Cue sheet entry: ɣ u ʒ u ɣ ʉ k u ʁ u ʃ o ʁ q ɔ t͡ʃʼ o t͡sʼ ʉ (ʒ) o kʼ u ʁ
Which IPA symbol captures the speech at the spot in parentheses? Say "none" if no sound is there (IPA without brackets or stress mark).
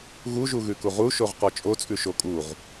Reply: ʃ